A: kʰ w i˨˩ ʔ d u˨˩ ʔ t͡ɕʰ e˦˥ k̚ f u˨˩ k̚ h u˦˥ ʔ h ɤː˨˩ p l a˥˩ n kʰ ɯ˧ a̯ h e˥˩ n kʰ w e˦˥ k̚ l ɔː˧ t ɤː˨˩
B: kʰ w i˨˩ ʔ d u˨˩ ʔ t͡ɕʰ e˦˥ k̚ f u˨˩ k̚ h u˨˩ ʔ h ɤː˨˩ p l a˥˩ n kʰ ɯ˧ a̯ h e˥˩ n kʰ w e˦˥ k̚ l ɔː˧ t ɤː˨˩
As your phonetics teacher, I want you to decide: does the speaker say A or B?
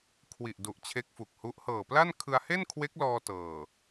A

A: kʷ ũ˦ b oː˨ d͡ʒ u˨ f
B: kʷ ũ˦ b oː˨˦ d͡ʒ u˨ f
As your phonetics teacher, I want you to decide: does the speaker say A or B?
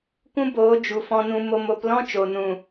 B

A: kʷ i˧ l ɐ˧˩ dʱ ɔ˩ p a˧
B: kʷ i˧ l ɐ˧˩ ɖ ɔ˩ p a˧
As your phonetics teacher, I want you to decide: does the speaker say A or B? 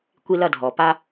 A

